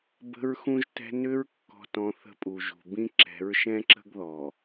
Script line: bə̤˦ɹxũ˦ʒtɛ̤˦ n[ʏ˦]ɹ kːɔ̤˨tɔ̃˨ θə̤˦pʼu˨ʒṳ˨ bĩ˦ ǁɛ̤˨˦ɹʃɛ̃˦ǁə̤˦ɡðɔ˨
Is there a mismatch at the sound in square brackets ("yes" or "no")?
no